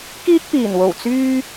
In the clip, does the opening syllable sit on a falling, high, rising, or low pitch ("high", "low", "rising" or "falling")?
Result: high